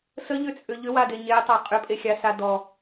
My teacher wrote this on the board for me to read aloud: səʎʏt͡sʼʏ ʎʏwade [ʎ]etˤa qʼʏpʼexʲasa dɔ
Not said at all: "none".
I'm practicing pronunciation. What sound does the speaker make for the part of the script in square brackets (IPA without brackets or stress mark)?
ɲ